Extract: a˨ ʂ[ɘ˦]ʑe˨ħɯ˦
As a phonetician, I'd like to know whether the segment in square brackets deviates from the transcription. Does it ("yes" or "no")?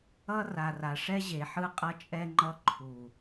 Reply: yes